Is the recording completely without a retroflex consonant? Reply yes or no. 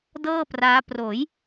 yes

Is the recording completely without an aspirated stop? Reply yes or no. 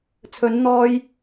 no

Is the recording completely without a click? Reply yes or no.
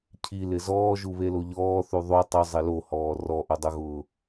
yes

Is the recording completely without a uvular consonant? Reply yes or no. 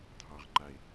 no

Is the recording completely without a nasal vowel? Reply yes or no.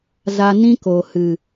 no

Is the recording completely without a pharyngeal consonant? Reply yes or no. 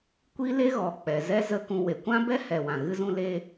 yes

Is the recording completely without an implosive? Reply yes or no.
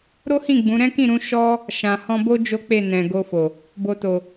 yes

